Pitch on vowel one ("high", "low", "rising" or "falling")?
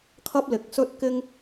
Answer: high